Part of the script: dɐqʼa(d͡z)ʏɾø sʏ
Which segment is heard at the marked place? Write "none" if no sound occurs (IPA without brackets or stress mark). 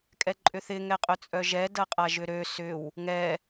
ʒ